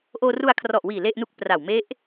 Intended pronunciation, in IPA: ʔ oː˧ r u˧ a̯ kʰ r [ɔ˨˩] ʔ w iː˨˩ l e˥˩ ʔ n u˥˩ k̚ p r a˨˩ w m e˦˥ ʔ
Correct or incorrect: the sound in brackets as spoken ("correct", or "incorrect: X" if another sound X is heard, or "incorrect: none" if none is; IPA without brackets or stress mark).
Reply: correct